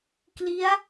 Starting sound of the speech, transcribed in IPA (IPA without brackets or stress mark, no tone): k